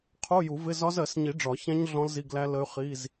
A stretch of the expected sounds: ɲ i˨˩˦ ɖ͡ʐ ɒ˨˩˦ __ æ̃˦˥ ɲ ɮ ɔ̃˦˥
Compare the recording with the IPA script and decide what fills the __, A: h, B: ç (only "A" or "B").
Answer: B